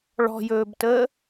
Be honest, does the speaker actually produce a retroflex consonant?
yes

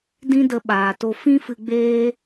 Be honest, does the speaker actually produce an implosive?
yes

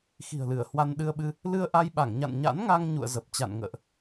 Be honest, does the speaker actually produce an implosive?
yes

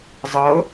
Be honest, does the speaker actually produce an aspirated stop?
no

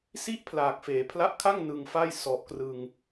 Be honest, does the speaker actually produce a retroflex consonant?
no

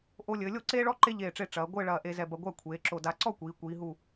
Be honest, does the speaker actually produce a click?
yes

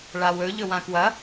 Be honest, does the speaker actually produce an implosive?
no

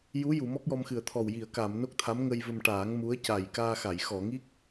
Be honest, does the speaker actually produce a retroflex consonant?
yes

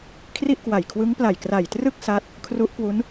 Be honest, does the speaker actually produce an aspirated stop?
yes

